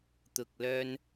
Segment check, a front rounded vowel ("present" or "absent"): present